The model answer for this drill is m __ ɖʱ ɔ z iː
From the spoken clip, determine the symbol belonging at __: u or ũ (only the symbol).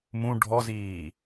ũ